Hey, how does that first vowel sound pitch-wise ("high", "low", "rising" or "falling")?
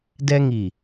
high